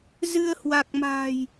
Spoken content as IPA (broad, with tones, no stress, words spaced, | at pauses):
zɨ˧ə̯hwa˨˩k̚ ma̤ː˨˩j